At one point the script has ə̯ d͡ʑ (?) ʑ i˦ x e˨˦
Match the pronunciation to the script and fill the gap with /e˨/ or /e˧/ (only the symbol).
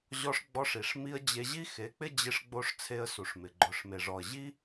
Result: e˧